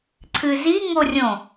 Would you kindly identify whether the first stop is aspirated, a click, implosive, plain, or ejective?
click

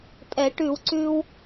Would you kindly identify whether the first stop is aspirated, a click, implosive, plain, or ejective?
ejective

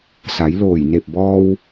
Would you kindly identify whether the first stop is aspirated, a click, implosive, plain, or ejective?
plain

